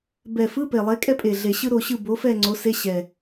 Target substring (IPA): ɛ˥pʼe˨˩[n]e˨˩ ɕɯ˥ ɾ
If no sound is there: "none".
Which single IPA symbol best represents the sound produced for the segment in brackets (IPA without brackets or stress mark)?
ɮ